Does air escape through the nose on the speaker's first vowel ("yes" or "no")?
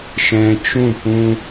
yes